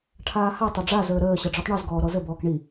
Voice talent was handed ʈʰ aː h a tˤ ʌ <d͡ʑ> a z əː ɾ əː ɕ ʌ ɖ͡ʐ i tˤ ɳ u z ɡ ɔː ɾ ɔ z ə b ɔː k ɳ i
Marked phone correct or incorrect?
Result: incorrect